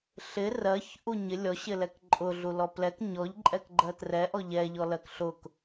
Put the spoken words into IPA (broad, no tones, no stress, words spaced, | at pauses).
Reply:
ɬɪ rɜç ʔuɲɪ lʲɔɕɪlɛk ǃʼʊ ɮulɔplɛk ɲɔʎǃʼɛkɡ͡ǃɜ trɛʔɔ ʎɛʎɔ lɜkɬʊk